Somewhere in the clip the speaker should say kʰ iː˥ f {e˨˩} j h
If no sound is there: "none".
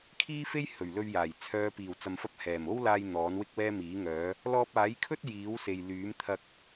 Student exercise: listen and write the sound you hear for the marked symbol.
e˥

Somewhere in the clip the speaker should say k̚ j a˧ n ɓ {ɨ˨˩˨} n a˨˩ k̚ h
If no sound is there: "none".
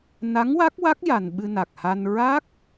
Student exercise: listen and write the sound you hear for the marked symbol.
ɨ˧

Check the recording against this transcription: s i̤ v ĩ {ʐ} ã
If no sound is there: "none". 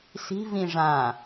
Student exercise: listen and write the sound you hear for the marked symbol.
ʐ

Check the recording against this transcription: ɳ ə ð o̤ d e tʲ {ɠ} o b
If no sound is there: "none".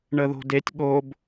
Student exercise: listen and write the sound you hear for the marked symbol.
ɠ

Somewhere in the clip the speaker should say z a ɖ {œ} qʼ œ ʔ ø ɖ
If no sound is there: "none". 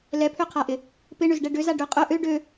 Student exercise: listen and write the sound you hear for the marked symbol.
ø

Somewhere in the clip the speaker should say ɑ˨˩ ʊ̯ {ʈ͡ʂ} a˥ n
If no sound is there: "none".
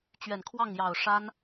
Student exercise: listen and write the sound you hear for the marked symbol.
ʂ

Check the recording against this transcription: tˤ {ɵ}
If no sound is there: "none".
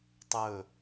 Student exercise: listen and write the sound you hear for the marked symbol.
ɵ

